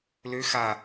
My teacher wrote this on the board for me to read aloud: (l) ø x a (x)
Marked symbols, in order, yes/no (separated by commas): yes, no